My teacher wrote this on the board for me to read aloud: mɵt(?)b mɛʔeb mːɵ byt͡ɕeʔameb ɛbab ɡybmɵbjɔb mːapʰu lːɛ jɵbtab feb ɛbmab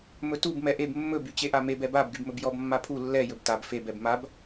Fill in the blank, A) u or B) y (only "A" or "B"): A